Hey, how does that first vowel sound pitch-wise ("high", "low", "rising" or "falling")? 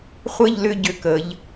falling